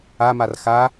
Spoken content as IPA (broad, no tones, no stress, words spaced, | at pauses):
amar xa